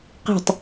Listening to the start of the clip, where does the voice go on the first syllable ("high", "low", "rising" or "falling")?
falling